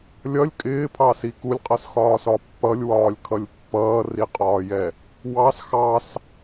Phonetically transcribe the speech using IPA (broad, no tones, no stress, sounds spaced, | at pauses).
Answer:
lʲ ʌ lʲ kʼ ɪː pʰ ɑ s i k u lʲ qʼ ʌ s x ɒː s ɒ pː ʌ lʲ w ɒː lʲ kʰ ʌ lʲ pː ʌː r i qʼ ɒː j ɛ | w ɑ s x ɑ s